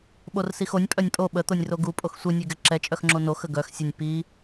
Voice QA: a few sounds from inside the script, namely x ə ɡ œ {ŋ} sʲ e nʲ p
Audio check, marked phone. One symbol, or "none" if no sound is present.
x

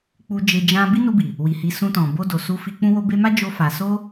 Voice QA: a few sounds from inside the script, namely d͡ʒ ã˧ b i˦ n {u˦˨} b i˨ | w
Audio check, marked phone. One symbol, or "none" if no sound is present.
u˧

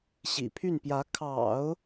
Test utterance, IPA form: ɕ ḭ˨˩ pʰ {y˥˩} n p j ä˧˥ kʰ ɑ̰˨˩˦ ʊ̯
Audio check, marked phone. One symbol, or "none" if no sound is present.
y˥˩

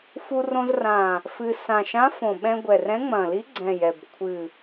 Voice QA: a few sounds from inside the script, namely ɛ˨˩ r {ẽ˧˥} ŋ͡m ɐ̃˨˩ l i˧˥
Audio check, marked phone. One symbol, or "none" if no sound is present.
ɛ̃˧˥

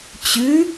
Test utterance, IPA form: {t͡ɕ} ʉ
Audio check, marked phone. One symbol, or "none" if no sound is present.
t͡ɕ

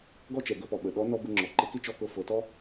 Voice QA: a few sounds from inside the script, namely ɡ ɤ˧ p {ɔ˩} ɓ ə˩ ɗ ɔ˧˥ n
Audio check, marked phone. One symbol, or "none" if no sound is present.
ɔ˩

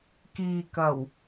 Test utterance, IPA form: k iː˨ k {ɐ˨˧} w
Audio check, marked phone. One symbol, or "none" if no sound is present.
ɐ˨˩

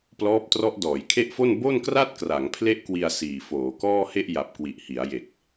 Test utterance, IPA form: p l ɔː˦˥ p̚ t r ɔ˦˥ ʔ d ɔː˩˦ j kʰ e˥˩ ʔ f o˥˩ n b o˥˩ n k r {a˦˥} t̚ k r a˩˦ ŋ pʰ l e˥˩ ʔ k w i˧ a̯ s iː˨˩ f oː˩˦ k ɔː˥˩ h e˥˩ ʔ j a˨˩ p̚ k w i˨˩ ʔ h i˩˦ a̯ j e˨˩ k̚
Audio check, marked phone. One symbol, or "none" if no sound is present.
a˥˩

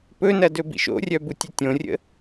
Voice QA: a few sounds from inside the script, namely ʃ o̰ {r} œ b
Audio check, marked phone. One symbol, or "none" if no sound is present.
rʲ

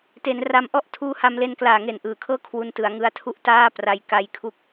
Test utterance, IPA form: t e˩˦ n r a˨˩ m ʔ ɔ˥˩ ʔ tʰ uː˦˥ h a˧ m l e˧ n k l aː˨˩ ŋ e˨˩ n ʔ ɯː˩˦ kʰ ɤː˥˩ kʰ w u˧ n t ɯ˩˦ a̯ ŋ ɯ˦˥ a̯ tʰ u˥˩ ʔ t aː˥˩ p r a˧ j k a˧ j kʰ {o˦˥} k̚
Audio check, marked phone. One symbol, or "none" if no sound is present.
u˦˥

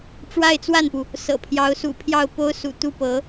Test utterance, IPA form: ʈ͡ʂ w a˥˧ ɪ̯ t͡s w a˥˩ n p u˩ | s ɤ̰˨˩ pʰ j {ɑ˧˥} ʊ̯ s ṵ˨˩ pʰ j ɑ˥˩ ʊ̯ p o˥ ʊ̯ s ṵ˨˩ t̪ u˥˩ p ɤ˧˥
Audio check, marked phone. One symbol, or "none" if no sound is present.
ɑ˧˥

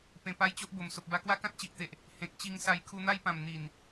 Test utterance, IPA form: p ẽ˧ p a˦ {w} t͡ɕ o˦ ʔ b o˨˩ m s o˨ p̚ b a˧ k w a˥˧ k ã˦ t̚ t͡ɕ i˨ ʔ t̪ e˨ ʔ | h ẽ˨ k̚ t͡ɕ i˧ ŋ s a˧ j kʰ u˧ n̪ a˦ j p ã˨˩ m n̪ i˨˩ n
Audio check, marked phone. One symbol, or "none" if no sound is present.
j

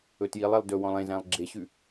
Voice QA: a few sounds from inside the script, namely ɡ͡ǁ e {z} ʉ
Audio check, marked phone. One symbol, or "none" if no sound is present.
ɕ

